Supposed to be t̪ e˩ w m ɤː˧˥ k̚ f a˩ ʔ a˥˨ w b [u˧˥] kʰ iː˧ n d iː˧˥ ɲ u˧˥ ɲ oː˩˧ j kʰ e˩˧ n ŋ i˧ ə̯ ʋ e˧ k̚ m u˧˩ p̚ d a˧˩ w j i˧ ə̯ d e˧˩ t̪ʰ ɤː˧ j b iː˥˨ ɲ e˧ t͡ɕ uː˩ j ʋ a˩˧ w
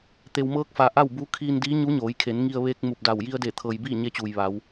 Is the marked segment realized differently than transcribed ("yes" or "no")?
no